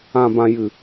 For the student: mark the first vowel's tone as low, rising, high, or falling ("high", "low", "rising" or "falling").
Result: low